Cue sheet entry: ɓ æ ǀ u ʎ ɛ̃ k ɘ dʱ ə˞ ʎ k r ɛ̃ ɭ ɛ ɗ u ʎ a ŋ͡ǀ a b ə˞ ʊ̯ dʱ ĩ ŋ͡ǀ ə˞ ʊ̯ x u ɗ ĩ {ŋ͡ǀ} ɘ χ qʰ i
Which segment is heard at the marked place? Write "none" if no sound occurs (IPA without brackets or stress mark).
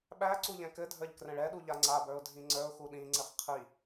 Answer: ŋ͡ǀ